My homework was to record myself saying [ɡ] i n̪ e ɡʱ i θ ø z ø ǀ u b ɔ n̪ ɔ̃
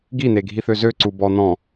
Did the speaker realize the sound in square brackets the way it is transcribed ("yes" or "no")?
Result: yes